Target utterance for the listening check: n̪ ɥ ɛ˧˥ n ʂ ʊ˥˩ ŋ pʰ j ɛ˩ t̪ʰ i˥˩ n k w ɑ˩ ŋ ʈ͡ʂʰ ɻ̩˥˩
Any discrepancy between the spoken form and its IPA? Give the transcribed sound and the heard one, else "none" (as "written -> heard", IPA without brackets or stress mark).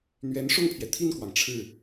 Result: none